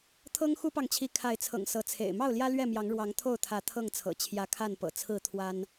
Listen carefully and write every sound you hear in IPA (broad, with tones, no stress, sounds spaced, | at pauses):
t̪ʰ ɤ˦ ŋ x u˦ p ɑ˨ ŋ t͡ɕʰ i˨˦ kʰ a˨˦ ɪ̯ t͡sʰ ɤ̰˨˩ ŋ s ɤ˨˦ t͡sʰ ḛ˨˩ ɪ̯ m ɑ˥˨ ʊ̯ l j ä˦ l ɥ ɛ˥˨ m j ɑ˨˦ ŋ ɻ w ɑ˨˦ ŋ t̪ʰ o˥˨ ʊ̯ t̪ʰ ä˨˦ t̪ʰ ɤ˥˨ ŋ t͡sʰ ɤ̰˨˩ t͡ɕʰ j ä˨˦ kʰ a˥˨ n p ɤ̰˨˩ t͡sʰ ɹ̩˥˨ t̪ʰ w a˦ n